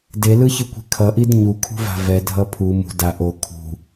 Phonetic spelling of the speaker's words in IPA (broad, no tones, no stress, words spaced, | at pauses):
delɯçɯkʷi̤ kʰʌʔid ɲukʰṳva̤ vɛdʱʌ pʰu mṳ da ʔo kʰṳ